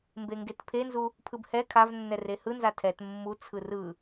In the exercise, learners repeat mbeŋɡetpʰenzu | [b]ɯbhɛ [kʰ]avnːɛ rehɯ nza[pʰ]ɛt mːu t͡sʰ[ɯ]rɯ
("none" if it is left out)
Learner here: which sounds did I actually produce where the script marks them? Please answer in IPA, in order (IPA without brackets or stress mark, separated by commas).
pʰ, kʰ, tʰ, ɯ